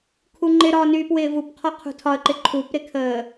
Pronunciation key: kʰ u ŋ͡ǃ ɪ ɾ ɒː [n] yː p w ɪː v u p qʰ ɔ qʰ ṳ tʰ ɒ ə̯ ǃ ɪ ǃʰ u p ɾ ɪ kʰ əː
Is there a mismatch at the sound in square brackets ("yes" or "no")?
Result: no